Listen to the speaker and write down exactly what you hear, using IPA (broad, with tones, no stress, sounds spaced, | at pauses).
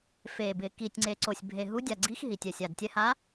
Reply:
f e˨˩ b ɪ˨˩ k i˨˩ tʲ ŋ͡ǀ e˨˩ ǀ o˨˩ sʲ bʱ e˨˩ ɦ u˨˥ dʲ a˨˩ ɡ͡ǀ i˨˥ x ɦ i˨˩ tʲ ɛ˨˩ sʲ a˨˩ d tʲ ɛ˨˥ h a˨˥